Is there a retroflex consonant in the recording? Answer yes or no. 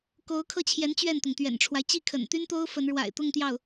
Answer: yes